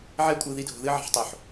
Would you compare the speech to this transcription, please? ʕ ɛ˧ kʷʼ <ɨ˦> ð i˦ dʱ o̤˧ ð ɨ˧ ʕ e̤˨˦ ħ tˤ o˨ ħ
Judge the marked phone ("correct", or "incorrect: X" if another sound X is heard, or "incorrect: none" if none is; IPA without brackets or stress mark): incorrect: ɨ˨